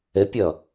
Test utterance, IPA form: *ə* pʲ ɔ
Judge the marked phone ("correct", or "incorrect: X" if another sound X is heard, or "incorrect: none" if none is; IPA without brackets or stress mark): correct